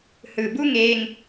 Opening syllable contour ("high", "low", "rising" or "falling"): low